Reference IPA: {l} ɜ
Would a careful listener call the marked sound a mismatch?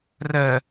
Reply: yes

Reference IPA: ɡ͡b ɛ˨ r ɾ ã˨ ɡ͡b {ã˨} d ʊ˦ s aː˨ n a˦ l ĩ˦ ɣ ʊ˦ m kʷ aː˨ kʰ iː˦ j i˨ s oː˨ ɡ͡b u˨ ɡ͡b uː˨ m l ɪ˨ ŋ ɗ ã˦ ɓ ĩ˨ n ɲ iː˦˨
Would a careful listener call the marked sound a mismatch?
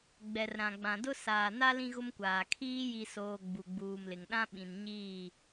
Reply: no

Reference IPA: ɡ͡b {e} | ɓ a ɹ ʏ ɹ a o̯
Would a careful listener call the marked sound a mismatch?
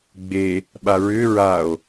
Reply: no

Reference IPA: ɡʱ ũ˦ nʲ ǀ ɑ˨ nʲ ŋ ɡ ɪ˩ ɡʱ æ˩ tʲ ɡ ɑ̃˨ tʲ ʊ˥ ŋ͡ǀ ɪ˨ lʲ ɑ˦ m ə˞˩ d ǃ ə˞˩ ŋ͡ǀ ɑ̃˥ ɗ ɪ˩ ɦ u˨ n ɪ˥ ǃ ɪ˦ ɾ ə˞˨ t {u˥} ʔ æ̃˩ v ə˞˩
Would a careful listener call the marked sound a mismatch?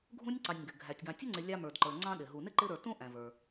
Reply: yes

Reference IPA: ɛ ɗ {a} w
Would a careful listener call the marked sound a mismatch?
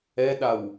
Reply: no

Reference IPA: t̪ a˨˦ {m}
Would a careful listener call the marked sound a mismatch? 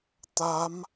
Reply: no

